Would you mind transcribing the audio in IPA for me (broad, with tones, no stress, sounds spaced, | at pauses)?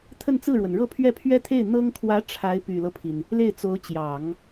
t̪ʰ ə˥˧ n t͡s ɹ̩˥˩ ɻ w ə˩ n ɻ ɤ˥˧ pʰ ɥ ɛ˥˩ pʰ ɥ ɛ˥ t̪ʰ e˥˩ ɪ̯ n̪ ɤ˥ ŋ kʰ w ä˧˥ ʈ͡ʂʰ a˧˥ ɪ̯ p y˨˩ l ɤ˦ pʰ i˩ n | l e˥˩ ɪ̯ t͡s o˧˥ ʊ̯ t͡ɕ j ɑ˨˩˦ ŋ